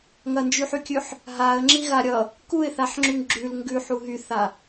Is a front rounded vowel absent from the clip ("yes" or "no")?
no